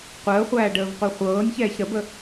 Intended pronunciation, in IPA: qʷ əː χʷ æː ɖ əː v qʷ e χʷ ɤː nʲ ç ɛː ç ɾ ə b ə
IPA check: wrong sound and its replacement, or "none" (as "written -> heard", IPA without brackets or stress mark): none